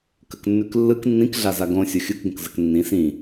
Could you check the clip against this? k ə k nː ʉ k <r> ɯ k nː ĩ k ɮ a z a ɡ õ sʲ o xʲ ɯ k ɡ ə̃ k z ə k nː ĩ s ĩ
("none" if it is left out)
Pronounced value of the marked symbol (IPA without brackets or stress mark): lː